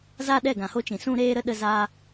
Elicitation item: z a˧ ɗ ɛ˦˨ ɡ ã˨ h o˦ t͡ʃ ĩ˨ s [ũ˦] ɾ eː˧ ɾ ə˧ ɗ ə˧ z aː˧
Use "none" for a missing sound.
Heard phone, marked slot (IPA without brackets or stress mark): ũ˧